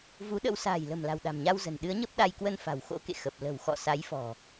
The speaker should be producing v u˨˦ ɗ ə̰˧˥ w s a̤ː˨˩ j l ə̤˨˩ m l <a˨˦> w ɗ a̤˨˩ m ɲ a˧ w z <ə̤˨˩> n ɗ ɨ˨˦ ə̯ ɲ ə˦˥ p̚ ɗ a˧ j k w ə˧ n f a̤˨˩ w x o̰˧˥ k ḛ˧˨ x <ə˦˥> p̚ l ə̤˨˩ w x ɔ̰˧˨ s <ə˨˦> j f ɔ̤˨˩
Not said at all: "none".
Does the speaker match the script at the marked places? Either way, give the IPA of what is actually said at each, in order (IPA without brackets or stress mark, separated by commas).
a̤˨˩, ə̤˨˩, ə˨˩, a˨˦